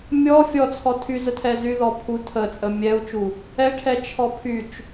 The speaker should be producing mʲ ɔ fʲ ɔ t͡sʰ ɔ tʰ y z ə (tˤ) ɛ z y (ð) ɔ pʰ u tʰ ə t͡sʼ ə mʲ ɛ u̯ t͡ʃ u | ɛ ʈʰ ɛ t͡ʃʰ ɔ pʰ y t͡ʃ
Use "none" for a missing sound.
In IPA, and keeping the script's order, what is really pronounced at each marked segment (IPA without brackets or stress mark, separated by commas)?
tʰ, ð